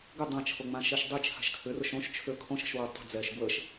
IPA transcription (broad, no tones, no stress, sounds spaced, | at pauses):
ɡ ʏ dˤ ã t͡ʃʰ o ŋ͡m ã ʃ ɛ ʃ dˤ e t͡ʃʰ a̤ ʃ kʰ ʏ r ʊ ʃ õ ʃ t͡ʃʰ ø kʰ õ ʃ ə̤ ʃ w ɤ tˤ ə̤ d͡z ɛ ʃ ɡ w ə ʃ